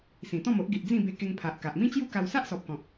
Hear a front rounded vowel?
no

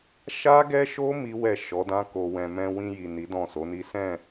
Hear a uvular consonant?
no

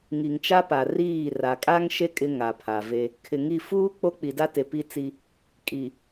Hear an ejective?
yes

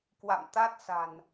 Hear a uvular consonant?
no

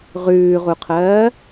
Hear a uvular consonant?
yes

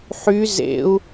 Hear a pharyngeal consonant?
yes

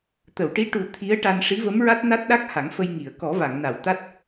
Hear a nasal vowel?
no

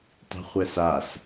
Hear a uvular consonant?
yes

